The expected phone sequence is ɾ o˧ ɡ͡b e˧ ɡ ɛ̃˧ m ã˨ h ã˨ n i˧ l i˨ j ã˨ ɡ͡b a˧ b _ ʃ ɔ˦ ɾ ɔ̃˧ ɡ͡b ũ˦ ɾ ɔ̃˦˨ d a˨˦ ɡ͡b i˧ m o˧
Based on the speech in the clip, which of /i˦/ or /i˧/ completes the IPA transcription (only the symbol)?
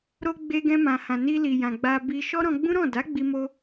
i˧